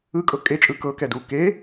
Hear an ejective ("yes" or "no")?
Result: yes